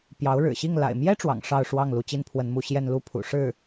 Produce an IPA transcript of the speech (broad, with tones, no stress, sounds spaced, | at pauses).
p j ɑ˧˥ ʊ̯ ɻ ɻ̩˨˩ ɕ i˥˩ ŋ l a̰˨˩ ɪ̯ m j ɛ˥ ʈ͡ʂ w ɑ̰˨˩ ŋ ʂ ɑ˥˧ ʊ̯ ʂ w ɑ˥˩ ŋ l u˧˥ t͡ɕ i˥ n pʰ w ə˧˥ n m u˧˥ ɕ j ɛ˥˧ n l u˥˩ pʰ ṵ˨˩ ʂ ɻ̩˥˩